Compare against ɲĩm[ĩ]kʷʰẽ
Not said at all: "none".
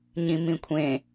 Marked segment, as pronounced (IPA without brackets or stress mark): ĩ